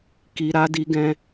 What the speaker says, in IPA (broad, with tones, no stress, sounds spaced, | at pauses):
k i˧ ɾ a˦ d i˦ ɡ ɛ̃˦